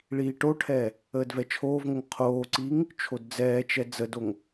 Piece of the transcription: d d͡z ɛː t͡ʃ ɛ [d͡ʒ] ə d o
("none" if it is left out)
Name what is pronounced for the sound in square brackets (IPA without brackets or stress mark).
d͡z